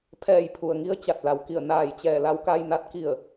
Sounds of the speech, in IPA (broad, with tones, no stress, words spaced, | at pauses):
pʰɛː˧˩jpʰu˩ə̯ŋi˧ə̯ t͡ɕa˧˩t̚la˩˧wki˧˩ə̯ naː˧˩jt͡ɕɛː˧˩la˧w ka˧jna˧˥t̚ ki˧˩ə̯